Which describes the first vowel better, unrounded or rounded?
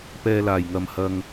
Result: unrounded